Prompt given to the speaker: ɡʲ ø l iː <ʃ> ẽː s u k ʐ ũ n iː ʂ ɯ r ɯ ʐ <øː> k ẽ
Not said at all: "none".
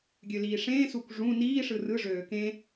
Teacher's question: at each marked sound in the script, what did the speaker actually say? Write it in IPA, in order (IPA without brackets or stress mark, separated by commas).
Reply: ʂ, øː